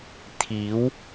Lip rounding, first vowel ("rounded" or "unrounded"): unrounded